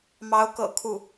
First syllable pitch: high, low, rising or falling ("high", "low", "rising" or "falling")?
rising